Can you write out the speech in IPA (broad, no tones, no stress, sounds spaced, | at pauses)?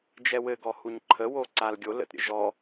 d͡ʒ ɛ w ɘ ɡ ɔ h u ɲ ǃʰ ə w o ǀ a l ɡʲ o l ə̰ t ɾʲ ə̰ ʒ ɔ